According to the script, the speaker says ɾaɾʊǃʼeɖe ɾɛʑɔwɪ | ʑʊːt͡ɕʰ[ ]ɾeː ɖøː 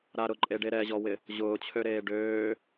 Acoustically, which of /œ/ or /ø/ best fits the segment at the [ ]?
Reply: ø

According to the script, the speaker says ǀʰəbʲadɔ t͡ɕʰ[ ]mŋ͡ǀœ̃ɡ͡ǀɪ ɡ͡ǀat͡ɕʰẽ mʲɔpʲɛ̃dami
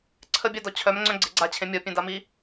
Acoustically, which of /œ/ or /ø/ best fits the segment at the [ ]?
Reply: œ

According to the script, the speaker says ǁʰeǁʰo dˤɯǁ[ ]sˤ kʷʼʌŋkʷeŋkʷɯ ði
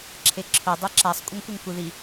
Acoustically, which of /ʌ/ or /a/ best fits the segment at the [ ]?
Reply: a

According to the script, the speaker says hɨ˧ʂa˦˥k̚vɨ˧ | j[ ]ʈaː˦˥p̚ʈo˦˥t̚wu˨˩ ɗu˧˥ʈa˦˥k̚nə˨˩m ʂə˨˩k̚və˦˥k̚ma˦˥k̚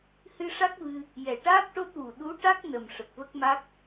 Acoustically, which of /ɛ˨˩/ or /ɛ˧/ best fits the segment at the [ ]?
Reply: ɛ˨˩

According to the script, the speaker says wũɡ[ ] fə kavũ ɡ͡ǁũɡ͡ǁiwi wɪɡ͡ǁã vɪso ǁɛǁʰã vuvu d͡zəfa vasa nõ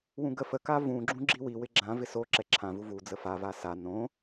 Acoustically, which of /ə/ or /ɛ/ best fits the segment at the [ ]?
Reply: ə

